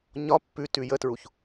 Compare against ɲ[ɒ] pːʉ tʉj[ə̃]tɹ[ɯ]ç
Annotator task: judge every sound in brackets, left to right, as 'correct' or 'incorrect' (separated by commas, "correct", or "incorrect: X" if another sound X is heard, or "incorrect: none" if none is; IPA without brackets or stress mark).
correct, incorrect: ə, incorrect: u